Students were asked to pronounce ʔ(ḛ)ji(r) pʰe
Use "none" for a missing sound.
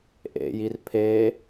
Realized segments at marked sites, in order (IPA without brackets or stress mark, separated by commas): ḛ, r